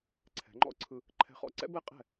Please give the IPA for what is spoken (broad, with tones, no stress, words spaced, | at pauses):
ǀʰɛ̤˩˥ŋ͡ǃɔ̰˥ ǀʰɯ˧ | ǃʰɛ̤˧χɔ̰˧ǀɛ̰˥ bɛ˥qʼɛ̤˥˩